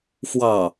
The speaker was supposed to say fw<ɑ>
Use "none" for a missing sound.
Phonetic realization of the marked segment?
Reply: ɑ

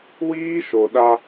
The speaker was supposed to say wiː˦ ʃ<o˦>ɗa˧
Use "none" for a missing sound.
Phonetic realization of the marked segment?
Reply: o˨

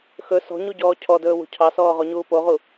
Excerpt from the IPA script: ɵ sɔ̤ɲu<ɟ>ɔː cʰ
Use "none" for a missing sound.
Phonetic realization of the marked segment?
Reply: ɟ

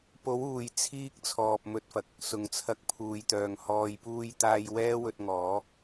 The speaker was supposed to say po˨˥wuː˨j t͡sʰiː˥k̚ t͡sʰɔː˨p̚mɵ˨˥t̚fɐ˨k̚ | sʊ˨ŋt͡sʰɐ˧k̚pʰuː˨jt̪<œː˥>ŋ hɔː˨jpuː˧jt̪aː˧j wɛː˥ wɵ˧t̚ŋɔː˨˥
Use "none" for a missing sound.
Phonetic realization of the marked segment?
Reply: œː˨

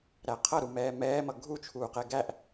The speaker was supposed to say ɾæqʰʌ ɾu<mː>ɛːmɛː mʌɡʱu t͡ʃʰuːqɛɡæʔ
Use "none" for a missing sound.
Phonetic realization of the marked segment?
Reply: m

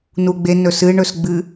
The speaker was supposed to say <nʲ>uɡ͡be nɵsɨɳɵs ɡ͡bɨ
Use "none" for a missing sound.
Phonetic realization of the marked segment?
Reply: n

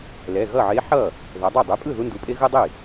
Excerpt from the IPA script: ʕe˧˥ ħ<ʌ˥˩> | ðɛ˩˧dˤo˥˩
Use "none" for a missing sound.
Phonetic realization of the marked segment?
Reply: ʌ˥˩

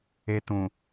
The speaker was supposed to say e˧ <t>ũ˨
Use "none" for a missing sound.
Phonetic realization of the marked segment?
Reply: t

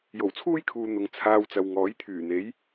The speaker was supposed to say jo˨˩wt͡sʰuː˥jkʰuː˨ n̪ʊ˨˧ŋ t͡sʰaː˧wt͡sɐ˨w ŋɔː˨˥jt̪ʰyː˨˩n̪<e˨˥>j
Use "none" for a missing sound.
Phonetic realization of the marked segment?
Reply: e˨˥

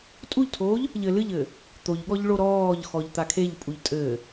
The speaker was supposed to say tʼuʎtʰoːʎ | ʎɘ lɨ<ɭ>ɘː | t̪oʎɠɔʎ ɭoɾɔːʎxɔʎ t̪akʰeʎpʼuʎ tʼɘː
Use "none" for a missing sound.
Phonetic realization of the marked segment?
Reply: ʎ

